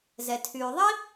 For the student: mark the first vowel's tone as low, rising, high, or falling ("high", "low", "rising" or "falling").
low